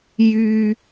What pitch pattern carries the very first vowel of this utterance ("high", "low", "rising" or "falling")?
high